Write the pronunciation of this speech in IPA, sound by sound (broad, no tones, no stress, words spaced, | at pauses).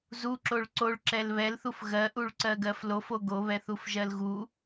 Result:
zuǁoɭ ǀoɭǁɛl βɛlθuf ɣɜʔuɭǀɜɡɜf lofo ɡoβɛθufʒɜl ɣu